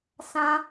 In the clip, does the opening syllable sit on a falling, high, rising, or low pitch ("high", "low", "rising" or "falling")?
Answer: high